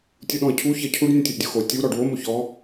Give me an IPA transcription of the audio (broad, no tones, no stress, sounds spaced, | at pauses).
tʲ u ɗ ɔ̃ ə̯ cʰ u ç ɐ cʰ u ɖ nʲ ũ tʲ u ʔ dʲ o x o tʲ u ɾ ɔ ɖ w o m o ç ɔ